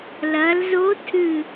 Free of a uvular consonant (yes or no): yes